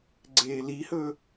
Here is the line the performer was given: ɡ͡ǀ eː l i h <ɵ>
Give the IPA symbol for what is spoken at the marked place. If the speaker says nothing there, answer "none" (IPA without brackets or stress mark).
ɵ